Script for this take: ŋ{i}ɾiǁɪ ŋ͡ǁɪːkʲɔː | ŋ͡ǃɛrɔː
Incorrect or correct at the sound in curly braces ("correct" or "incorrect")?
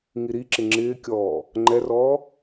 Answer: correct